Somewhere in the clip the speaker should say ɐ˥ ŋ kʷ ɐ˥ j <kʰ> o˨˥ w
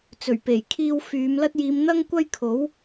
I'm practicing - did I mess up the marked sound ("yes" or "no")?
no